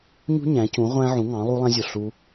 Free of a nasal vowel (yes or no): no